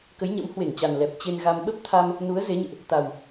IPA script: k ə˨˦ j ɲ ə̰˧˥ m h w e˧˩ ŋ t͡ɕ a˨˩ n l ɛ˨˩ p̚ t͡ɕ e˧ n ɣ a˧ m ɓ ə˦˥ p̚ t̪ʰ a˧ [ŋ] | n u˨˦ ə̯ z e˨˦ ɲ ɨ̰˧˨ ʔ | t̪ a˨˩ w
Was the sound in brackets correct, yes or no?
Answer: no